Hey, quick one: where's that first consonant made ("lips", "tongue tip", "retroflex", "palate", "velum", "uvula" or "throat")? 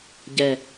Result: palate